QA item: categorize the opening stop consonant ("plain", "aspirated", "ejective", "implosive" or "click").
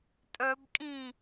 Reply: ejective